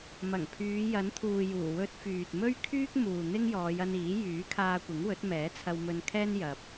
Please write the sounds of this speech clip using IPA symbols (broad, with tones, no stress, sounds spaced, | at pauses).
m ɐ˨˩ ŋ pʰ yː˨˧ j ɐ˨˥ n t̪ʰ uː˨ j uː˨˩ w ɵ˧ t̚ f yː˨ t̚ m ɵ˥ ɥ kʰ yː˥ k̚ m uː˨ n̪ ɪ˥ ŋ j ɔː˨˧ j ɐ˧ n iː˨˥ j yː˨˥ kʰ aː˧ kʷ ɪ˨˥ ŋ w ɵ˨˥ t̚ m ɛː˨˥ t͡sʰ ɐ˧ w m ɵ˧ n kʰ ɛː˥ n j ɐ˧ p̚